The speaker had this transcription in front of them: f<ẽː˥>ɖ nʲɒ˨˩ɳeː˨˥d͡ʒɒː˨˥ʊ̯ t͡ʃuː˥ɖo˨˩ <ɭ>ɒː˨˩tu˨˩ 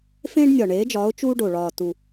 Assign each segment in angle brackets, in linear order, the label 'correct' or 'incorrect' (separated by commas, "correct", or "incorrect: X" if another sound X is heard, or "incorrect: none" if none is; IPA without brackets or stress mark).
correct, correct